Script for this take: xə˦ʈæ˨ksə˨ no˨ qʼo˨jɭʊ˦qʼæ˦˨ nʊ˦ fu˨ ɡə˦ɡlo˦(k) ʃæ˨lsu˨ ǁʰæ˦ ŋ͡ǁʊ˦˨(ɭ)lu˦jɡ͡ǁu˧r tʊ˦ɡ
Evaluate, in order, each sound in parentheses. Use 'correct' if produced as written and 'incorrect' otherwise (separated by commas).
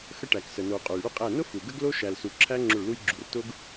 incorrect, correct